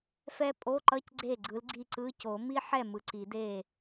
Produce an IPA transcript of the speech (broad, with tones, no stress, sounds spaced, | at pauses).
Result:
f ɛ˦˥ pʼ o˧˥˧ ǃ ʌ˧˥˧ c ɡ͡ǀ e˥˩ ɡ͡ǀ ɯ˨˥ l ɡ͡ǀ i˥˩ ǀ ɯ˧˥˧ c o˨˩˦ m i˦˥ ħ ɛ˥˩ m ɯ˨ ǀ i˨˩˦ d e˥˩